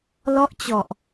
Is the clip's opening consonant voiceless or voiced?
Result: voiced